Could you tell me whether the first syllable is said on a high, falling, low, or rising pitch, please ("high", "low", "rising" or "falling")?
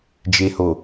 low